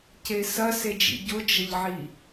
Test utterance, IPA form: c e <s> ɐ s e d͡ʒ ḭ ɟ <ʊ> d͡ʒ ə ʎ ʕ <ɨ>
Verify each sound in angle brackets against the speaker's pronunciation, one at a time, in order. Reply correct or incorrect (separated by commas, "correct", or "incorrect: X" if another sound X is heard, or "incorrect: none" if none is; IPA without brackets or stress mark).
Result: correct, correct, incorrect: i